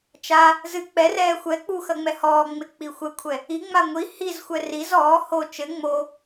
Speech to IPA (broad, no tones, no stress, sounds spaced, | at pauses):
t͡ʃ a | z ɨ k͡p ɛ r ɛː xʷ ɛ k͡p u x ɐ ŋ͡m ɛ h ɔː ŋ͡m e k͡p i xʷ ɛ kʷʰ ɛ | i ŋ͡m a ŋʷ i h i z xʷ ɛ r i z ɔː h o t͡ʃ ɘ ŋ͡m o